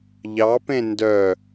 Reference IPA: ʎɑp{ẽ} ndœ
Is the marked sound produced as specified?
yes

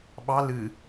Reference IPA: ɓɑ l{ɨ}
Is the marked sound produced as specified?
yes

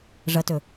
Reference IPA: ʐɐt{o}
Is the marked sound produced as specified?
no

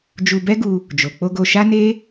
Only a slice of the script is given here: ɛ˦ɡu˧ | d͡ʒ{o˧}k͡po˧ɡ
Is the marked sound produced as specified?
no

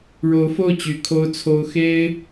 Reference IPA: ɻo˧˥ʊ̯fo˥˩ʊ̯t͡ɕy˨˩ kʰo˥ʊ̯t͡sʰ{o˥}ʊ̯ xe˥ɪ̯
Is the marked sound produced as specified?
yes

